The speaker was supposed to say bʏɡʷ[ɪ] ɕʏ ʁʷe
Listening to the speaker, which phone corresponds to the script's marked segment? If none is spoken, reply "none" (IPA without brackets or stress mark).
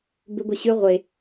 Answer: ɛ